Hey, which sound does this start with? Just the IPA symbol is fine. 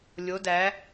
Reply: lʲ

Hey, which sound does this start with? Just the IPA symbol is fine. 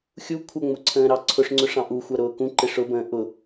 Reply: xʲ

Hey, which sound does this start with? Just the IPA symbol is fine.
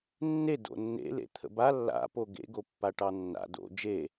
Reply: nː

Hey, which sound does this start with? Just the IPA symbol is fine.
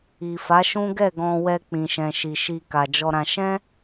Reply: i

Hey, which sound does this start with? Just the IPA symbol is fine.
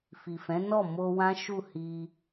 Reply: f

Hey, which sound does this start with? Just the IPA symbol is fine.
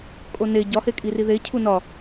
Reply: kʼ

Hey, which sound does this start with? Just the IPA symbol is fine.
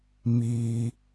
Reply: m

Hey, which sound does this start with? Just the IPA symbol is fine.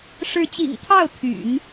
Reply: ʂ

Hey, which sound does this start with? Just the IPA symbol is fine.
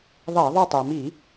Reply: ðˤ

